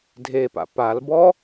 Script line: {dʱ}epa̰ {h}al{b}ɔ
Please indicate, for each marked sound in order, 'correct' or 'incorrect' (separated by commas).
correct, incorrect, correct